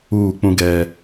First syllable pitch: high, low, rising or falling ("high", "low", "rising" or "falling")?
falling